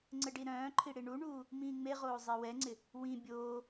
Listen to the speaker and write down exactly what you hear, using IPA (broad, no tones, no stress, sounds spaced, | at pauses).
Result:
ŋ͡ǀ ɘ ɖ i ɾ œ̃ː ǃʰ i ɽ i ɳ u ɳ uː | m ĩː ŋ͡m e ʁ oː zˤ e w ɛ ŋ͡ǀ ɪ | w ĩ bʲ oː